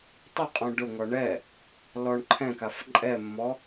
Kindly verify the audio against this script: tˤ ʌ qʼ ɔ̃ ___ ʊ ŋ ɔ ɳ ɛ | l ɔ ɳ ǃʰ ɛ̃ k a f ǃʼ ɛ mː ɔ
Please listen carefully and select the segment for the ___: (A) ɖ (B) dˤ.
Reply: A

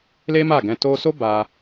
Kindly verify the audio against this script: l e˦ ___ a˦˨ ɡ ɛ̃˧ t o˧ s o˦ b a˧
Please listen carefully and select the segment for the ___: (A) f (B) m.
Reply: B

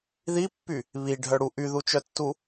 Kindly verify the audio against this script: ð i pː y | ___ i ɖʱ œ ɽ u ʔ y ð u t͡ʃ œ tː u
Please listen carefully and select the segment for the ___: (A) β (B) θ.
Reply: A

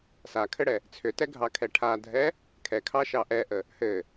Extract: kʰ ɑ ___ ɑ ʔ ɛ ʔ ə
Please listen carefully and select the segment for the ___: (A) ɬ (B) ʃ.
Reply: B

